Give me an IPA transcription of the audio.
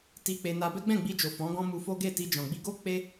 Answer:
t i˧ k͡p e˧ n a˧ b ɛ˦ ɡ͡b ɛ̃˦˨ ɡ͡b i˧ d͡ʒ o˨ f ɔ̃˨˦ ɡ ɔ̃˦ m u˧ f o˦ ɡ e˦˨ t i˧ d͡ʒ ɔ̃˨ ɡ͡b i˧ ɡ o˦ k͡p e˦

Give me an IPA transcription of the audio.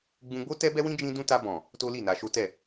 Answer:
ɡ͡b ũ˧ ɡ͡b o˦ t ɛ˦ b ɛ˦ w ĩ˦ d͡ʒ ĩ˦ d ũ˦ t a˧ b ɔ̃˨ | t o˦ l i˦˨ n a˧ ʃ o˦ t ɛ˦˨

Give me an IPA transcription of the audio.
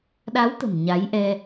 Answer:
ɗ a˨˦ w t̪ ə̤˨˩ m ɲ a˨˦ j ʔ ɛ˧

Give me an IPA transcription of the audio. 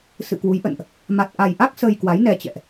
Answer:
s ɨ̰˧˨ k w u˨˦ j ʔ ə̰˧˨ n ʔ | m a˨˩ t̚ ʔ a˨˩ j ʔ a˦˥ k̚ s əː˧ j k w a˨˦ j n ɛ˧ t͡ɕ ɛ̰˧˨ ʔ

